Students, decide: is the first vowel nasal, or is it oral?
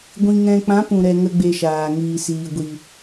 nasal